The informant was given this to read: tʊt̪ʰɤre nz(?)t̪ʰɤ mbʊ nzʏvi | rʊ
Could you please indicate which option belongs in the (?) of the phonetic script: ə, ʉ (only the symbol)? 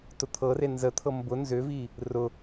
ə